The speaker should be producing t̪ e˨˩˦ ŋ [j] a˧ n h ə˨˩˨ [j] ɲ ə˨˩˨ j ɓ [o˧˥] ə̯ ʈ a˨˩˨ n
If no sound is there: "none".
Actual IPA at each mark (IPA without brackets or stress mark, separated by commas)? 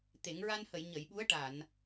ɹ, j, u˧˥